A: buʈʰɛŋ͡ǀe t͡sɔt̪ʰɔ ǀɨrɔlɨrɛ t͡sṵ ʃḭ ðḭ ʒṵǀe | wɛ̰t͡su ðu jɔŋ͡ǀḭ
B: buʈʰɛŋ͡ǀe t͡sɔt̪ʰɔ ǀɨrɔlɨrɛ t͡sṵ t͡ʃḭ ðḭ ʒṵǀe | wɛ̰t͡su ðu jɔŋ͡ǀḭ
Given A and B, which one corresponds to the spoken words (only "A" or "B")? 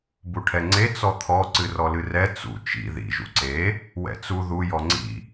B